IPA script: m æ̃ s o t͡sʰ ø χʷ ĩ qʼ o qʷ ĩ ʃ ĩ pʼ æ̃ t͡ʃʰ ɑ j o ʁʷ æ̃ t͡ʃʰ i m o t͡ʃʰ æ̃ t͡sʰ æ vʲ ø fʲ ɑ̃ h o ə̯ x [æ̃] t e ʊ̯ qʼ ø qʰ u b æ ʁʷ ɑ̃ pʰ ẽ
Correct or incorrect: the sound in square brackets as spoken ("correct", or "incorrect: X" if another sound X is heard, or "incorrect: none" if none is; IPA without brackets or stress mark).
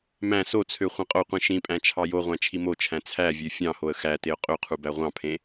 incorrect: æ